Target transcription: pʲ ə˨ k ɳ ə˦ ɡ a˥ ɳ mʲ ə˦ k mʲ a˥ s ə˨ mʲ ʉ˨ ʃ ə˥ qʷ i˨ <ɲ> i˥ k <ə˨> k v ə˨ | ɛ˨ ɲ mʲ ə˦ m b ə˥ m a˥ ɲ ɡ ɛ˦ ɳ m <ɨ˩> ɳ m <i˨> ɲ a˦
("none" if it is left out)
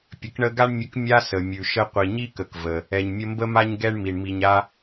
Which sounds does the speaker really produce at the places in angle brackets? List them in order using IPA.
ɲ, ə˨, i˩, i˨

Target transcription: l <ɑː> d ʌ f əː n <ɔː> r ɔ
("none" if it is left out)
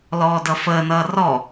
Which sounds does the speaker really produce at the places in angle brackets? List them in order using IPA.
ɔː, ʌː

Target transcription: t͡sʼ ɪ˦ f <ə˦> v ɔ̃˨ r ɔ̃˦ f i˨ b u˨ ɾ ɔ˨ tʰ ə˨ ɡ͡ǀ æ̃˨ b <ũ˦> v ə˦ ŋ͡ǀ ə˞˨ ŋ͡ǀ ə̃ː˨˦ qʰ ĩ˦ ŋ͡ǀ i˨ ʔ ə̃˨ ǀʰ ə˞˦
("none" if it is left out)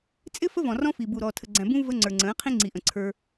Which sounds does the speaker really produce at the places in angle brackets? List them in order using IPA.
ə˦, ũ˦

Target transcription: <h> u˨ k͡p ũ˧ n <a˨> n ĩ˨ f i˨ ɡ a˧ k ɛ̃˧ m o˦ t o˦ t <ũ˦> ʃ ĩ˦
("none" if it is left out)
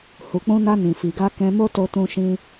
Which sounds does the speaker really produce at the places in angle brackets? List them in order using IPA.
h, a˧, ũ˦

